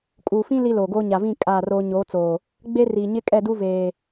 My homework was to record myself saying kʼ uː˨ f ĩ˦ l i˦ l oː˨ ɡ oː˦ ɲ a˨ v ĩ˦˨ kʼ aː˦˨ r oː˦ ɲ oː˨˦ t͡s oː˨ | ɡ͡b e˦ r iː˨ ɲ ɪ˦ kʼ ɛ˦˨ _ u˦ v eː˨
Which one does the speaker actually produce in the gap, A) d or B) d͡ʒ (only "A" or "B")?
A